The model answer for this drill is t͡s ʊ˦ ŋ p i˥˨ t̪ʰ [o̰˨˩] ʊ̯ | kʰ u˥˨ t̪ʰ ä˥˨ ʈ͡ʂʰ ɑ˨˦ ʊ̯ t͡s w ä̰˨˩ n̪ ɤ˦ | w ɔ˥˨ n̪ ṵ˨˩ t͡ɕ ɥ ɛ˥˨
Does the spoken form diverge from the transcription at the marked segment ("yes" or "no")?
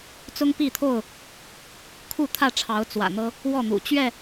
yes